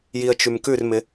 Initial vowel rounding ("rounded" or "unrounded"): unrounded